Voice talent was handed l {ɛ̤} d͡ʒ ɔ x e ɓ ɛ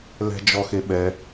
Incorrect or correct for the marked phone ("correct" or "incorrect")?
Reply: correct